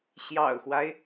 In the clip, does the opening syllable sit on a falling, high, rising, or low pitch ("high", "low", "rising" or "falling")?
low